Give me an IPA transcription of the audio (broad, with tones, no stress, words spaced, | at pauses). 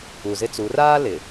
u˨zɪ˦t͡su˨˦ raː˦ lɪ˨